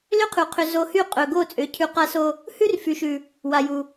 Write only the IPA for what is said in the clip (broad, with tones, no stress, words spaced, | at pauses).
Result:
lʏ˦qʰʉ˨ qʰʏ˧ zo˧hy˦˨ qʼɵ˨ ɡo˦˨t͡sʼʏ˨˦ cʰʉ˧ qa˧so˧ | hʉ˦r fy˨ʃʉ˨ | wa˨ju˨